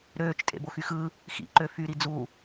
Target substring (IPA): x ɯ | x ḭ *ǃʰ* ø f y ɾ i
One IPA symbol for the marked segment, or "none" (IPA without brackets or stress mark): ǃ